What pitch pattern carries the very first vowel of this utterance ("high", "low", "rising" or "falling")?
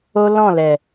high